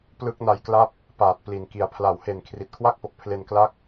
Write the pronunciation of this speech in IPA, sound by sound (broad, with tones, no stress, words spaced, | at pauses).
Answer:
plɯ˦˥k̚na˧jkla˥˩p̚ | paː˨˩t̚pli˨˩nki˨˩a̯ pʰla˩˦whe˨˩n kʰri˨˩t̚kʰwa˥˩k̚po˨˩k̚pʰle˧n kla˦˥k̚